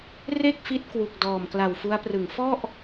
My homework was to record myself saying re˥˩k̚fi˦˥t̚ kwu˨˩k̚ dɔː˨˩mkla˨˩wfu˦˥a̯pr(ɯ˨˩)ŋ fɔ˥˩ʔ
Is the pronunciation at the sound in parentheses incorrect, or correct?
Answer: correct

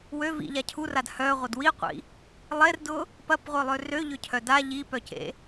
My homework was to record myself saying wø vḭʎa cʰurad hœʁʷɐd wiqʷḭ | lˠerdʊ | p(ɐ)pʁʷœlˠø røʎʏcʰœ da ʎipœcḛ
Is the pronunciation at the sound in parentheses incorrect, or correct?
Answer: correct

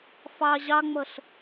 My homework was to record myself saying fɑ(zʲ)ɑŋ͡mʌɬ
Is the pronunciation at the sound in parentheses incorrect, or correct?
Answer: incorrect: ʑ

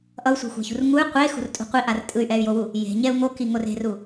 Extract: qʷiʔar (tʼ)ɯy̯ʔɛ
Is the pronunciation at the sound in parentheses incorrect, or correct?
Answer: correct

